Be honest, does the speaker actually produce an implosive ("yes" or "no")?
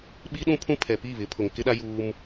yes